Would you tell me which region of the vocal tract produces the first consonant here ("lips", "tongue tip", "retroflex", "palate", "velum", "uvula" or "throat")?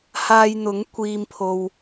throat